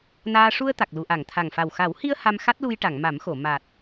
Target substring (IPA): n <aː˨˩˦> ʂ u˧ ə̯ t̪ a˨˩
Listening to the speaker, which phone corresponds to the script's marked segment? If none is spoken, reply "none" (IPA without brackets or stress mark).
aː˧